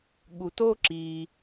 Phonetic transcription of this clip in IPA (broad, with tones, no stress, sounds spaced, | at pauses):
ɠ u˨ t o˦ ǁ iː˨